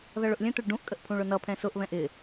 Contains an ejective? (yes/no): yes